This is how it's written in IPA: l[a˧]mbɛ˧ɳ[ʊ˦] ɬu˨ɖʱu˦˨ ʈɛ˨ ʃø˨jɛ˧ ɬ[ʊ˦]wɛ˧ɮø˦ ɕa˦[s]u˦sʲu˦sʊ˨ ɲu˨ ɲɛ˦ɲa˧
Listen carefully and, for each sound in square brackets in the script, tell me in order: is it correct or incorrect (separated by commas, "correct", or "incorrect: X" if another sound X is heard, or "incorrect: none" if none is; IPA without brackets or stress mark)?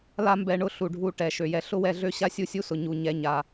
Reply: incorrect: a˦, correct, correct, incorrect: sʲ